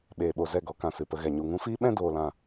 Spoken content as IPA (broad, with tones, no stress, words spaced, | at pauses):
ɓeː˨ɓo˨ zɛ˦˨ɡɔ˨˦kã˨ sɨ˨pə˧ɣɛ˨ ɲu˨ŋũ˧fiː˦ɓɛ̃˦ doː˧lã˦˨